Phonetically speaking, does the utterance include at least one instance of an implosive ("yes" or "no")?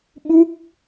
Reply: yes